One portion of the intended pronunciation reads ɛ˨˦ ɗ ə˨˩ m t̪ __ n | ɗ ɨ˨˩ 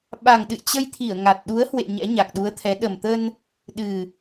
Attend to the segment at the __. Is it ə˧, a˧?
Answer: ə˧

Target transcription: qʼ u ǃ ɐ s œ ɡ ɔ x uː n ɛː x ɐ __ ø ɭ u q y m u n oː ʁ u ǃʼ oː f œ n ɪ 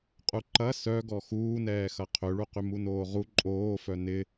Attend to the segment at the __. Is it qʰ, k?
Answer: qʰ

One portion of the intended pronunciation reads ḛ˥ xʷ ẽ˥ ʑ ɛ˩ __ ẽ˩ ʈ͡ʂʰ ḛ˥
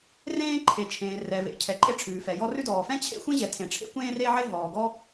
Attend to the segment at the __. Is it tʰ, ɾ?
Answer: tʰ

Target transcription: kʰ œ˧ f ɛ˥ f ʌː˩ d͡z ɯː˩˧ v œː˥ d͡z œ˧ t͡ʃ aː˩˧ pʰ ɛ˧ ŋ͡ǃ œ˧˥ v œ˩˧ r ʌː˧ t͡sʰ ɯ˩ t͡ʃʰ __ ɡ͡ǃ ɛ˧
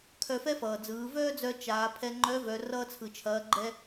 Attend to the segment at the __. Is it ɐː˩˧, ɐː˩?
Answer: ɐː˩˧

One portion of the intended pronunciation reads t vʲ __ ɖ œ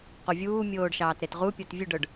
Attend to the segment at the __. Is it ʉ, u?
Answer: ʉ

